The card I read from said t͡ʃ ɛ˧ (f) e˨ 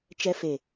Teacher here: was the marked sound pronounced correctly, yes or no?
yes